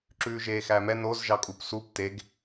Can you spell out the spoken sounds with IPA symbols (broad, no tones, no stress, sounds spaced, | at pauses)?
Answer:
ǁ ʉː ʒ eː x æ m ɛ n o z ʒ ɑ kʼ u p s u p t e ɡ